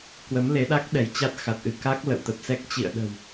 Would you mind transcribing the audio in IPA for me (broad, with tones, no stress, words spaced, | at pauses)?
kwə˨˦mle˨˦ɗa˦˥k̚ ɗɛ˧˩jt͡ɕa˦˥t̚xa˨˩t̚ʔɨ˧˩ ka˦˥k̚ lə̰˧˨wt̪ə˨˩p̚sɛ˦˥k̚ t͡ɕḭ˧˨ə̯ɗə̤˨˩w